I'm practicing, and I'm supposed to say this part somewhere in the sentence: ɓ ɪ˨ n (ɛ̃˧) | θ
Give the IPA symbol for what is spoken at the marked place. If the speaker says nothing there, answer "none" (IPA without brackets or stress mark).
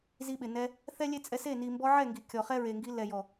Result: ɛ˧